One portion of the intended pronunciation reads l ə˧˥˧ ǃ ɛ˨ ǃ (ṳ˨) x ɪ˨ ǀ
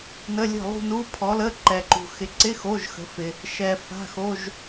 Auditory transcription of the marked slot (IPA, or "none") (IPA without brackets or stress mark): ṳ˨